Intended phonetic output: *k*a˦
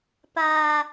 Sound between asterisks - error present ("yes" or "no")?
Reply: yes